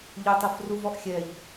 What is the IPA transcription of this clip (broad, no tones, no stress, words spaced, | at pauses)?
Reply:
ʎʊtˤufru vɔʔxʲɛʎ